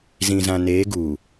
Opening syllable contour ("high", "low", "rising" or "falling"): low